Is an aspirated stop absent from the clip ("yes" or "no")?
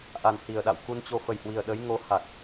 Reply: yes